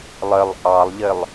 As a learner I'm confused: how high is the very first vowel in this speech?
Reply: high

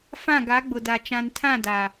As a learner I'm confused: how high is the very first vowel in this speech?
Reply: low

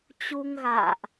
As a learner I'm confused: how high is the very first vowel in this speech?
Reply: high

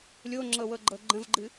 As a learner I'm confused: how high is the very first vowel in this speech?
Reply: mid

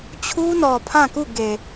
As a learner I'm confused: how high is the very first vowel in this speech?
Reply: high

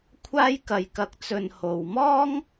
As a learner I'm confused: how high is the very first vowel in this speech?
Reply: low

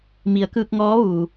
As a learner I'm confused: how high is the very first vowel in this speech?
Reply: high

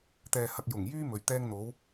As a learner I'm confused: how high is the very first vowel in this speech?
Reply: mid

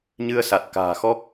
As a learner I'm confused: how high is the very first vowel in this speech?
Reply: high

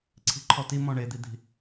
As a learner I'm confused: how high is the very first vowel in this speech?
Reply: high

